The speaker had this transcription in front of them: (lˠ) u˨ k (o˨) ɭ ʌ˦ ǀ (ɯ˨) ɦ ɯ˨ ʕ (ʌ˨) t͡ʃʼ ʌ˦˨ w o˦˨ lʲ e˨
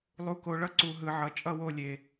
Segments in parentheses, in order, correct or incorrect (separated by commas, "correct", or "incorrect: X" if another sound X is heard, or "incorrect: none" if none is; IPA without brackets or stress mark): correct, correct, incorrect: u˨, correct